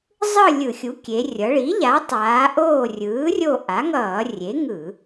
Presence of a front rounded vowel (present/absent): absent